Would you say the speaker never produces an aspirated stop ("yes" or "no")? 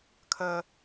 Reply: no